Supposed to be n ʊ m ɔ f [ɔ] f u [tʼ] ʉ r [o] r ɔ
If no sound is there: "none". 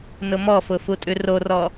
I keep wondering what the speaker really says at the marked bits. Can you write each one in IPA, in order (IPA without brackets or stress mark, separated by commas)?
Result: ʊ, tʼ, o